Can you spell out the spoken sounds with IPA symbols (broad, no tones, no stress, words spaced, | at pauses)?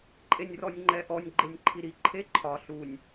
ǃʼenʲrɔnʲŋ͡ǃɛʔɔnʲ ɡ͡ǃenʲǃʰiɾi ǃʰeǃʰɒ ɬunʲ